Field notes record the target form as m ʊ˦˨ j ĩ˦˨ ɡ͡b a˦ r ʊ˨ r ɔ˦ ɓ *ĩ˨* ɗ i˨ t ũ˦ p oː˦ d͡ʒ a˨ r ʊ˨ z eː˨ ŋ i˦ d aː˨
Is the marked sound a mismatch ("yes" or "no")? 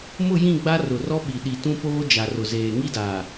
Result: yes